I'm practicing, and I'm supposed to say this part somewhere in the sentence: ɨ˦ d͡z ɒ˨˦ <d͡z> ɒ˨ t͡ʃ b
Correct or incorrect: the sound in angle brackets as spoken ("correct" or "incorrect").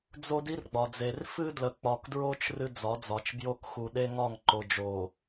correct